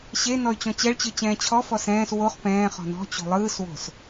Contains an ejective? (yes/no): no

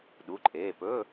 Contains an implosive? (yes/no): yes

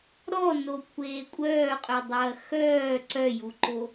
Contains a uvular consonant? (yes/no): yes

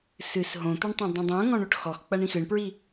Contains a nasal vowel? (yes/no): yes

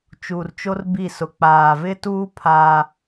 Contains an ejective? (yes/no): no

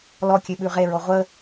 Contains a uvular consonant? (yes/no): yes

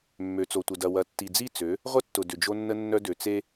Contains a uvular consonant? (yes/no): yes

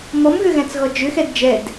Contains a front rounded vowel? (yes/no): yes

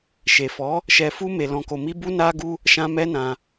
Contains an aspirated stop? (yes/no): no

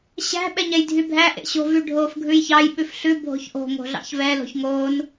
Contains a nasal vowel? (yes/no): no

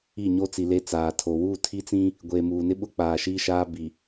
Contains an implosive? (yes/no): yes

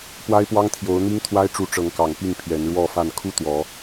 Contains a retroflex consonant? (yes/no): yes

